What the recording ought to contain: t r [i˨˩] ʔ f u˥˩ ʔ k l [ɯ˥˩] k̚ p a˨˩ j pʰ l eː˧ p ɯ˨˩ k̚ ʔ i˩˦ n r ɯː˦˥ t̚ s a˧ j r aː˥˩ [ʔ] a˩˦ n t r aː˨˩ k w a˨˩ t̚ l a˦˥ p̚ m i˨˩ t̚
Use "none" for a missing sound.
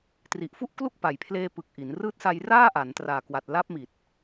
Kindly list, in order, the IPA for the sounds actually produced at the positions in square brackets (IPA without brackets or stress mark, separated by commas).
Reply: i˨˩, u˥˩, ʔ